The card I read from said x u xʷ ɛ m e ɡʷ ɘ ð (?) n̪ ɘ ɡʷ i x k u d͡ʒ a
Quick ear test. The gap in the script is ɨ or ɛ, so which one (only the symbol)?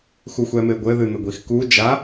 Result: ɨ